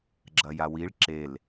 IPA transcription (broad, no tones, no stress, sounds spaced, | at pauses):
ɡ͡ǁ ɐ j a w i ɭ ǁ e l